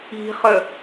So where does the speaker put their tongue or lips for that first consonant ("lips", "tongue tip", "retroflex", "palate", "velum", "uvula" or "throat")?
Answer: uvula